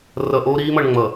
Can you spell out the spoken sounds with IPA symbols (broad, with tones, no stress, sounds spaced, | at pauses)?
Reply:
r ʌ˨ ʔ oː˦ ɾ iː˦ m ʌ˨ ɳ ŋ͡m ʌ˨